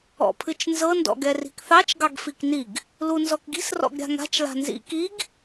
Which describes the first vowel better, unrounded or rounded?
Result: rounded